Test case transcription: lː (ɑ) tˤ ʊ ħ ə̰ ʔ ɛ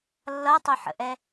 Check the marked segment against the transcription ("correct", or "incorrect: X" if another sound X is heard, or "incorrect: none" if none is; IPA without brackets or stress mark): incorrect: ʌ